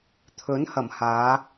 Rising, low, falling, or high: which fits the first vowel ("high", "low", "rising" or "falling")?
rising